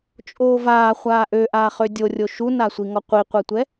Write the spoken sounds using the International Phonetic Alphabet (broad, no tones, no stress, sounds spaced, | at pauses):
t͡ʃʼ oː v aː χʷ aː ʔ ø ʔ aː χ ø dʲ o rʲ o ʃ u n a sʷ i ŋ ɔ qʷ i qʷ ɛ tʷ ɛ